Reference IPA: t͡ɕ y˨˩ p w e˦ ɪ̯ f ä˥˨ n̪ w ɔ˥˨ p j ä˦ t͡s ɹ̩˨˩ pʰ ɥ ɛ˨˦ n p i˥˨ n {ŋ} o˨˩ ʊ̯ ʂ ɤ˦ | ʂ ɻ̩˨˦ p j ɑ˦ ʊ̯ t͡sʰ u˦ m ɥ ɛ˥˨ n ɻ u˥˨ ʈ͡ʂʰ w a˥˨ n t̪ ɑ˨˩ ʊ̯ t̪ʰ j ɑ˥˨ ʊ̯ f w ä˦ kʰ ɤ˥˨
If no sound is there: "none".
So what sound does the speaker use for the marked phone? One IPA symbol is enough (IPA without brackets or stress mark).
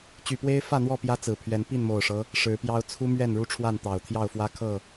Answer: m